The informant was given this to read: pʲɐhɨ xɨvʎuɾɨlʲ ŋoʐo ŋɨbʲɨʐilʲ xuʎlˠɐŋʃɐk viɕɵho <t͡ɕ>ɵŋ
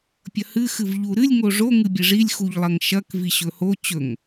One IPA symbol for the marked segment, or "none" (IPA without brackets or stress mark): t͡ɕ